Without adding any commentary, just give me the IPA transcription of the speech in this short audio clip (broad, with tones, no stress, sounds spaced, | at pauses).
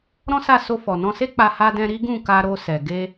ɾ ɔ̃˦ s a˦˨ s o˧ f ɔ˨ n ɔ̃˧ s e˦ k͡p a˧ h a˧ d ɛ̃˧ ɾ i˦ ɡ ũ˦˨ k a˧ ɾ o˧ s ɛ˨ ɡ e˧